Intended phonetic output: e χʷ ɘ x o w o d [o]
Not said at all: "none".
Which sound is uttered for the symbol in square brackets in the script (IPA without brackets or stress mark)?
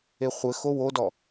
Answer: ɔ